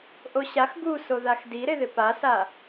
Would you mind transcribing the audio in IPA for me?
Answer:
ʔ o ɕ a x ɡ u s o ð a x d i ɾ e ð ɪ p a s a

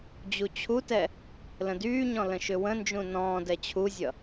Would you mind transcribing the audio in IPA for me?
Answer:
d͡ʑ u t͡ɕʰ u t ɛ | l ə̃ d yː ɲ ɔ̃ l ə̃ ʃ ʏ w ə̃ n d͡ʒ ũ n ɔ̃ː d ɛ t͡ɕʰ u zʲ ʌ

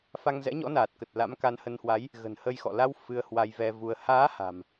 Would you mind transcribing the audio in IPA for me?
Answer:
f a˧ ŋ z ɛ̰˧˥ ɲ ɔ̰˧˥ n aː˨˩ t̚ k ə˨˩ t̚ l a̰˧˥ m k a˧ n h ə˧ n h w a˨˦ j | ɣ ə̤˨˩ n h ə˧ j x ɔ̰˧˨ l a˧ w f ɨ˧ ə̯ h w a˧ j v ɛ˧ v u˧ ə̯ h aː˨˦ h a̤˨˩ m

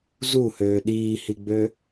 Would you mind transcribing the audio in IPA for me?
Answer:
z u h øː ɗ iː h i ɡ͡b ø

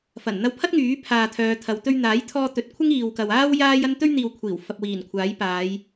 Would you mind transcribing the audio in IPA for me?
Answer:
f ɐ˨˩ n n̪ ɐ˧ w pʰ ɐ˥ t̚ ŋ yː˨˥ pʰ aː˧ t̪ʰ œː˨˧ t̪ʰ ɐ˨˧ w t̪ ɵ˧ ɥ n̪ aː˨˥ j t̪ʰ ɔː˧ t̪ ɵ˨˥ t̚ kʷʰ ɪ˥ ŋ iː˨ w k ɐ˨ w aː˥ w j aː˥ j ɐ˥ n t̪ ɵ˥ ɥ n̪ iː˨ w kʷʰ iː˨˩ w f ɐ˨ p̚ w iː˨˩ n kʷʰ aː˨˥ j p aː˨˧ j

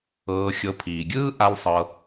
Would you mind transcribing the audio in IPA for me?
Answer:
ɤː˧ xʲ ɤ˧ pʰ iː˨ ɡʲ ɯː˦ ʔ a˦ l sˤ ɤ˧

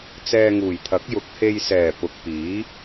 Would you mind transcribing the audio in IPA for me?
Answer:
t͡s ɛː˧ ŋ uː˨˩ j t̪ʰ ɐ˨˥ k̚ j ʊ˨˥ k̚ h e˧ j s ɛː˨˩ p ʊ˨ k̚ p iː˨˥

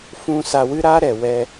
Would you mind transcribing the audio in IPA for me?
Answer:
f ũ˧ s a˧ w ɨ˦ ɾ a˦ ɾ ɛ˨ w ɛ˦

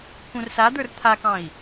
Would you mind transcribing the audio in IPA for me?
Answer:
k ũ r s a d̪ ə˞ r t̪ʰ a k ɑ̃ i̯

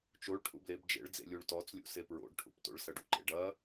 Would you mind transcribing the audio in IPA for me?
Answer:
t͡ʃ o ɭ ʈʰ ṵ b l e b d͡ʒ ḛ ɭ d͡z ḛ lʲ u ɭ t ɔ t͡s lʲ ṵ s e p ɹ o̰ ɖ ʈʰ ṵ p t o̰ ɭ s ɐ ɖ ṵ ǃ ḛ ɖ ɐ

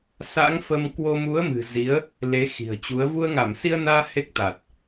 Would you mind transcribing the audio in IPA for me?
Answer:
s a̰˧˥ ŋ f ə˧ m k w o˧ m u˨˦ ə̯ m ɨ̤˨˩ z i˨˦ ə̯ | l e˨˦ x i̤˨˩ ə̯ t͡ɕ u˨˦ ə̯ v u˧ ə̯ ŋ a˧˩ m s i˧ ə̯ n aː˧ h e˦˥ k̚ t̪ a˨˩ t̚

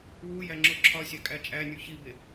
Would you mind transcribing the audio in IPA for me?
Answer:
w u j æ ŋ͡ǁ o ǁʰ ɒ sʲ æ kʼ æ t͡ʃʼ æ nʲ u ç i b e

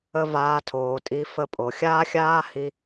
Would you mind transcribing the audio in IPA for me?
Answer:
ə˥ v aː˧˥ tʰ oː˩˧ tʼ i˧˥ f ə˧˥ pʼ o˩ xʲ aː˥ xʲ aː˥ h i˥

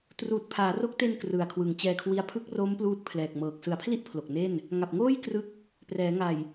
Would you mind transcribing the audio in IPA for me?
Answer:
t r uː˨˩ t̚ pʰ aː˩˦ r o˦˥ k̚ t e˧ n k r ɯ˩˦ a̯ kʰ w ɯ˩˦ ŋ t͡ɕ ɛː˧ kʰ w i˦˥ a̯ pʰ ɯ˦˥ k̚ r o˦˥ m p l uː˦˥ t̚ pʰ l ɛː˨˩ k̚ m ɤː˨˩ k̚ s ɯ˨˩ a̯ pʰ l i˥˩ ʔ pʰ l o˨˩ k̚ n e˥˩ n | ŋ a˨˩ p̚ ŋ oː˥˩ j k r ɯ˦˥ k̚ | p r ɛː˩˦ ŋ a˨˩ j

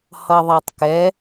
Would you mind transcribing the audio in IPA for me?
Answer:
h ʌ ðˤ a tˤ k ɛ

